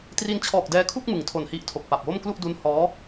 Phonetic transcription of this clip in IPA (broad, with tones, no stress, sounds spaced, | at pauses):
t r i˧ n t͡ɕʰ ɔː˨˩ k̚ d ɛː˧ kʰ u˥˩ k̚ m ɯ˩˦ ŋ tʰ o˨˩ n h i˦˥ ʔ tʰ o˨˩ k̚ p a˨˩ p̚ w o˥˩ m k l u˥˩ ʔ d u˦˥ n h ɔː˦˥